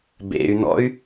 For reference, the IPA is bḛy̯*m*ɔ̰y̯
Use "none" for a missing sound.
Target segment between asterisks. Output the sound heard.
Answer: n̪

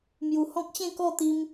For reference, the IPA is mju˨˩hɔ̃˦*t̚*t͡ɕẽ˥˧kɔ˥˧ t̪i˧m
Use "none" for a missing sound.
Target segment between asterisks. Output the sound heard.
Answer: k̚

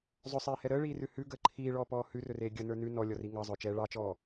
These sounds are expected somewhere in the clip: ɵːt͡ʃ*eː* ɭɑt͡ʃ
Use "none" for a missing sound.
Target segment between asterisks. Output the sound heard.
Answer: ɛː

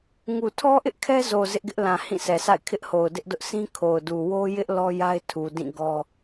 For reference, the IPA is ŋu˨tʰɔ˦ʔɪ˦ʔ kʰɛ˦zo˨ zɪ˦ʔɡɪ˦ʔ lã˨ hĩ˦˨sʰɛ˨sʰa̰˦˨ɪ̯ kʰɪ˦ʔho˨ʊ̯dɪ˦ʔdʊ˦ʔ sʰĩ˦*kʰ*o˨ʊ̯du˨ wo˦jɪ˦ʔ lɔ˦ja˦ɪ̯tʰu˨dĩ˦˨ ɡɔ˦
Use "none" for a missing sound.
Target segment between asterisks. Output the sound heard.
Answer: kʰ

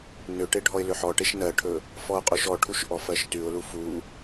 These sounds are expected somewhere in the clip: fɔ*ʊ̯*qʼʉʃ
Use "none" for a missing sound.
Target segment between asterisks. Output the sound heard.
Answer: ʊ̯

